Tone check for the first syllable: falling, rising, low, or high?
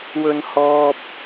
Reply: high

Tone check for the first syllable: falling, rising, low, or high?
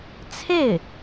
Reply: falling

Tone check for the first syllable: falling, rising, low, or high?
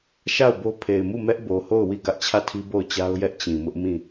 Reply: falling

